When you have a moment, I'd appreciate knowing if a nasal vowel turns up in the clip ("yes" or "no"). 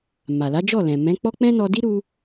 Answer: yes